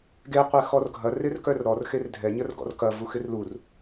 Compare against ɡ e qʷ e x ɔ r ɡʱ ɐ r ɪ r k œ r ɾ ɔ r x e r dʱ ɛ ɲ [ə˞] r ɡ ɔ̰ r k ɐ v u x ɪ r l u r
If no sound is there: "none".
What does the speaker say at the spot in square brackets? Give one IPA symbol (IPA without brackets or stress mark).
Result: ə